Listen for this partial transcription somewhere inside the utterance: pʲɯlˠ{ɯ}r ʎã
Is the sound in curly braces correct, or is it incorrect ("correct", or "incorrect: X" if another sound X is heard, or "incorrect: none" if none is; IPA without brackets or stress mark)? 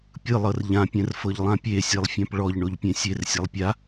incorrect: ɤ